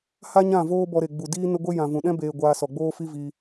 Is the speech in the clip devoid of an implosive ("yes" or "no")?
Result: no